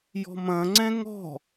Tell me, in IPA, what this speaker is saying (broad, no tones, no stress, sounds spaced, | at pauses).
j ɔ̤ m ɐ̃ ŋ͡ǀ ɛ̃ ŋ ɔ̤